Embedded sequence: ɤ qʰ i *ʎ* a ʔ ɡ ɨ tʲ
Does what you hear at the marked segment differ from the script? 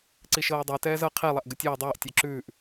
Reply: yes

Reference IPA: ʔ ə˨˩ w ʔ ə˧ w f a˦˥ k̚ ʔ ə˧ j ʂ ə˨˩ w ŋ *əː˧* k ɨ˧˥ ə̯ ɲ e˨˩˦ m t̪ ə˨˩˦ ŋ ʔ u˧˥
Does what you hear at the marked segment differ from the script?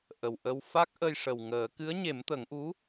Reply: yes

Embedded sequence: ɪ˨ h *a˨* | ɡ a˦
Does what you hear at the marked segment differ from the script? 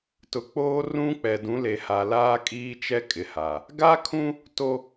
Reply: no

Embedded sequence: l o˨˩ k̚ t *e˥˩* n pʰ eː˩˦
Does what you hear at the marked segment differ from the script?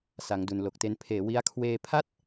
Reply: no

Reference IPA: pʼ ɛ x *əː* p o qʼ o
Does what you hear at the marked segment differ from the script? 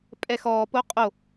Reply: yes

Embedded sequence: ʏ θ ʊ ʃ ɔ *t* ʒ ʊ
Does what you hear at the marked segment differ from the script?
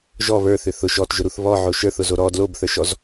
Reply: no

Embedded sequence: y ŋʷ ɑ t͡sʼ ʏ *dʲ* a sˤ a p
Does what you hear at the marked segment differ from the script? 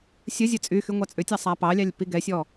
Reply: yes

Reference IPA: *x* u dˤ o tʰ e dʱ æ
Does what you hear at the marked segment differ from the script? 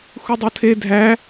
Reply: no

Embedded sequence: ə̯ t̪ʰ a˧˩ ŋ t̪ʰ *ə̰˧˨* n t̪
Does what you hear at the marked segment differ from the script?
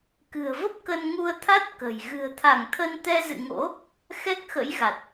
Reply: yes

